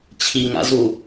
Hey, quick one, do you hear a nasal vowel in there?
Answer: no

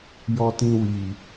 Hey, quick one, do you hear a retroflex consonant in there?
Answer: no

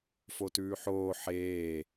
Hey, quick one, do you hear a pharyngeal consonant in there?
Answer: yes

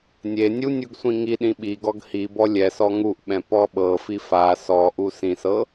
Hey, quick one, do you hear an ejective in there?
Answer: no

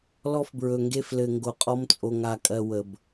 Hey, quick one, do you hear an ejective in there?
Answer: yes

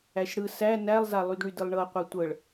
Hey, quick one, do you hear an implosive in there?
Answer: no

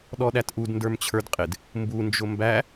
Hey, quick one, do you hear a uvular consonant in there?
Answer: yes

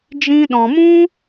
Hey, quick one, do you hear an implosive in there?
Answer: yes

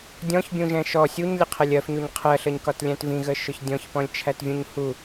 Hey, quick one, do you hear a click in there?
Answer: no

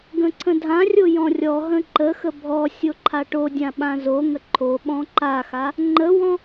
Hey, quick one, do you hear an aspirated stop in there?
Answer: yes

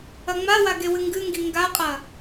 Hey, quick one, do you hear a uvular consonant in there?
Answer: yes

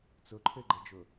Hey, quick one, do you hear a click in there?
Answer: yes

